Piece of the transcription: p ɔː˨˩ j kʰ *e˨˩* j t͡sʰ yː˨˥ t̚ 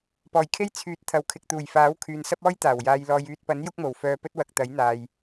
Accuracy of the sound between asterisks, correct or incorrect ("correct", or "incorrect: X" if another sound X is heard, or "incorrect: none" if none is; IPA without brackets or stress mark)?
incorrect: e˥